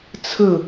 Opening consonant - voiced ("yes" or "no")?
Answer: no